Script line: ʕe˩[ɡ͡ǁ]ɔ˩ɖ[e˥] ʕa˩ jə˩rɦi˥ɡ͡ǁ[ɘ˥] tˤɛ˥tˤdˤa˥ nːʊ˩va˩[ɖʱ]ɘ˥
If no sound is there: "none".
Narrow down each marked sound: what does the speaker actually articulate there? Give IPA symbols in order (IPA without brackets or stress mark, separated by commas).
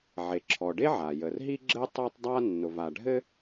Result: ǁʰ, e˥, ɘ˥, ɖʱ